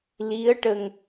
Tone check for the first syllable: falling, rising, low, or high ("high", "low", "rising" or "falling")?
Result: rising